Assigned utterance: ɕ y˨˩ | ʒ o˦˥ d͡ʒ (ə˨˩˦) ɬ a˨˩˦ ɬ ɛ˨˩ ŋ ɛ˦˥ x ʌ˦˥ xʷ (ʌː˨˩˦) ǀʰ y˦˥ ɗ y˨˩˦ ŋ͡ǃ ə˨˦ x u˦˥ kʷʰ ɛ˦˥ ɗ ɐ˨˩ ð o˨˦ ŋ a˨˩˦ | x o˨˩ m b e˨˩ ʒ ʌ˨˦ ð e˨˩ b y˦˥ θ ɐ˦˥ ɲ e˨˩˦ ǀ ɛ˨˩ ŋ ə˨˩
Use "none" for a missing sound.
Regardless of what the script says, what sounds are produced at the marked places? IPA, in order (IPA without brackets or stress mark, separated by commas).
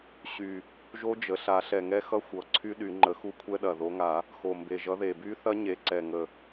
ə˨˩, ʌ˨˩˦